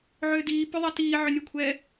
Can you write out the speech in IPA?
ʕ ʏː d iː p ʏ ðˤ i t iː ʕ ʏ nʲ ɛ kʷʰ ɛː

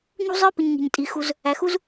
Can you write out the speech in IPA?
ɲ ṳ˥ zˤ ə˞˥ p ɪ˨ ɲ ŋ i̤˩ ɲ tʼ i˩ x u˨ z | æ˩ x u˦ z

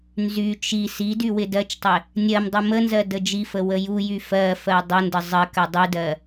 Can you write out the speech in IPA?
n z y t͡ʃ i s i d y w ɪ d ɜ t͡ʃ tˤ ɪ | nʲ ɜ m dˤ u m ə n z ɜ d ə d͡ʒ i f ə w ə j u j y f ɜ f ɜ dˤ ə n d ə zˤ ə k ɜ dˤ y d ɜ

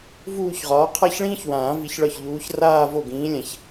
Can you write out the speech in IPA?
v uː˥˧ ç ʁ ɒː˨˥ qʰ a˥˧ ç ɭ ĩː˥ ç w ãː˨˩˦ v i˨˥ ç ɭ ɒ˥˩ ç ʎ uː˨˥ ç r aː˥˧ v o˥˩ ɡ ĩː˨˥ lʲ ã˨ ç

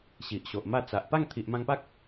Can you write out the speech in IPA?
ɕ i˨ ʔ ɕ o˨ ʔ m a˥˧ t͡s a˨ ʔ p a˥˧ ŋ t̪ʰ i˨ ʔ m ã˧ ŋ p a˦ k̚

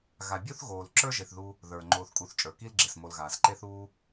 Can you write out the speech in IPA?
ɣ a˨ bʲ o˥ θ ɣ oː˨ l ǁ ə˞˥ ʒ e˨ θ ð u˦ | ð ə˞˩ ŋ͡ǃ oː˨ θ kʼ u˨ θ t͡ʃʼ ə˞˩ k i˥ l ɡ͡ǁ e˩ s m o˨ l ɣ aː˩ s ǃ e˦ θ uː˦

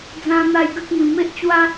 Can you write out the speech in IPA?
d͡z ã˦ n̪ a˦ j ɡ ə˦ k̚ m ĩ˧ m e˦ ʔ t͡ɕ w a˦

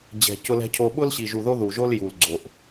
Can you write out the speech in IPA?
d͡ʑ ɛ̤˨ c ʊ˦ l ɛ̤˦ cʰ o˦ ɓ ʊ˦ l ɕ i˨ ʒ u˨ ð o˦ ð u˨ ʒ o˦ l j u˨ l ɡ͡ǀ o˨ ʔ

